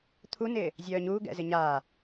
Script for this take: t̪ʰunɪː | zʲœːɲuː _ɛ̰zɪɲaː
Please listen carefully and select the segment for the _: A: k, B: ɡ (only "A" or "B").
B